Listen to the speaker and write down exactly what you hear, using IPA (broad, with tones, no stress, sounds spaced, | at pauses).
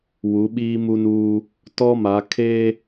w u˨˦ ɓ iː˦ m u˦ n uː˦ | t ɔ˦ m a˨˦ kʰ e˦